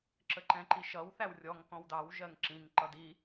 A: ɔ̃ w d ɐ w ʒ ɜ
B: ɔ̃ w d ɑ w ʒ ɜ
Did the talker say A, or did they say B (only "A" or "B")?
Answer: B